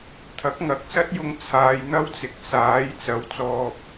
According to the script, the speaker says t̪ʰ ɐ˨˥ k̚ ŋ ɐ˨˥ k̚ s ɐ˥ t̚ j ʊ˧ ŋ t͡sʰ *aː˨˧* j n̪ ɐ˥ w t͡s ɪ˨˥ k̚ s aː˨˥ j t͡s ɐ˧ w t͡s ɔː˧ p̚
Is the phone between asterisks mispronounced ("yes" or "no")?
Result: no